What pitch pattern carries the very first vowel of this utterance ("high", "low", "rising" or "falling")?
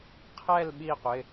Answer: falling